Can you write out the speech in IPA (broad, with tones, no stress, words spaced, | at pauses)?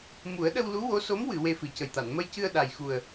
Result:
mu˨˩˦ə̯ɗə˧wlu˧˥wo˧˥ so˧˥mwɨ˨˩˨ we˧fɨ˨˩cə˨˩jt̪a˨˩˨n mə˧jcɨ˧ə̯ ɗa˨˩jxu˨˩ə̯